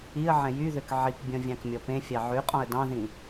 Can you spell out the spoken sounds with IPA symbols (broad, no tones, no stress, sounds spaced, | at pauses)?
i ə̯ ʕ ɛ̃ j y ð ø k ʕ i k bʲ ɔ̃ vʲ ɑ̃ k mʲ ɔ p ẽ fʲ ɑ ʕ ʉ qʼ ɔ̃ ə̯ d ɑ̃ ð ĩ